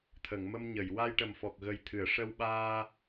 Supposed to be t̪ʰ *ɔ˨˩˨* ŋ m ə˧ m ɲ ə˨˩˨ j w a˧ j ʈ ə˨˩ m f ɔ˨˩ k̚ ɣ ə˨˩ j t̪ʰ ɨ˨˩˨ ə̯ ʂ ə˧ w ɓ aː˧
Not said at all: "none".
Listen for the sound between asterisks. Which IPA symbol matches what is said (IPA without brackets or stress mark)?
ə˨˩˨